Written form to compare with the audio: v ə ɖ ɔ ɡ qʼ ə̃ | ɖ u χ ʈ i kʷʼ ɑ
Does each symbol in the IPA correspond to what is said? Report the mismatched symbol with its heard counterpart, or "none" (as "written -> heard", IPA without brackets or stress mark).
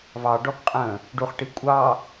ə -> ɑ